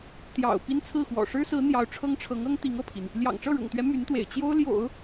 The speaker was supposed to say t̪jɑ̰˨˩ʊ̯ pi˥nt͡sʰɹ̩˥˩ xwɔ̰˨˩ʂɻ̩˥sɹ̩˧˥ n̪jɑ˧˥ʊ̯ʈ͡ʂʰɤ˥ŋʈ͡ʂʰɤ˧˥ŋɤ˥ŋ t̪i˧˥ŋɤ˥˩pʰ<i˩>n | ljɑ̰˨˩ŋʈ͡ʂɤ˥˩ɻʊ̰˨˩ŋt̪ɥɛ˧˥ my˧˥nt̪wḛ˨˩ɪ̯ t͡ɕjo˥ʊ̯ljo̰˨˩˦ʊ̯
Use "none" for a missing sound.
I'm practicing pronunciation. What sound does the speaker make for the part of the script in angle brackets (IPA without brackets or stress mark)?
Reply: i˩